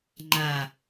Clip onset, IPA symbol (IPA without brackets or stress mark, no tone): ŋ͡ǃ